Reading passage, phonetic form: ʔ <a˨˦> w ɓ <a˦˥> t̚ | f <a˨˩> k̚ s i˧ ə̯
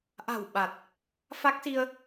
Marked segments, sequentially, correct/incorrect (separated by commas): incorrect, incorrect, incorrect